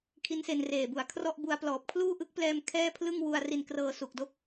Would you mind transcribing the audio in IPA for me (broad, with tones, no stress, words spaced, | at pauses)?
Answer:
kʰi˦˥nse˧nreː˨˩bu˩˦a̯ kʰrɔ˥˩ʔbu˧a̯plɔː˨˩p̚ kʰluː˥˩ʔɯ˦˥k̚plɛː˧m kʰɛː˥˩pʰlɯ˥˩ŋ wu˧a̯ ri˧n krɤː˧su˨˩k̚do˥˩k̚